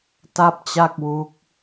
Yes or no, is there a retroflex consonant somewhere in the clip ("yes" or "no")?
no